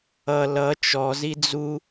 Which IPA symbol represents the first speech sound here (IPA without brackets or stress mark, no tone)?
ʌ